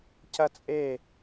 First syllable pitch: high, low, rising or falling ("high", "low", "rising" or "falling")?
high